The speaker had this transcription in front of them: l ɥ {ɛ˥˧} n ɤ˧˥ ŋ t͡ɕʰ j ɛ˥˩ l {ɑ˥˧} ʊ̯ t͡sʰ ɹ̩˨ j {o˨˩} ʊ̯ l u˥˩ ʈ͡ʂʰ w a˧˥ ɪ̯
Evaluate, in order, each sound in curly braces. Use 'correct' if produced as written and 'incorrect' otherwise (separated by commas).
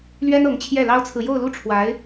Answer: incorrect, incorrect, incorrect